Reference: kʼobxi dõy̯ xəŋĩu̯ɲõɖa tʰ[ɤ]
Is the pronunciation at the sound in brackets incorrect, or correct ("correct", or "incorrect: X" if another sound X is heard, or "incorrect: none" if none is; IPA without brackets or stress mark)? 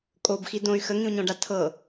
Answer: correct